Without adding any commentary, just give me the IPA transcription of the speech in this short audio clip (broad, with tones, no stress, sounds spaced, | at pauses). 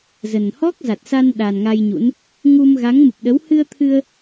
z ə˨˩ n h ɔ˦˥ k̚ z a˨˩ t̚ s a˧ n ɗ a˨˩ n ŋ a˧ j ɲ ṵ˧˥ n | ŋ u˧ m ɣ a˨˦ ŋ m ɨ˨˩ p̚ ɗ ə˨˦ w h ɨ˧ ə̯ t̪ʰ ɨ˧ ə̯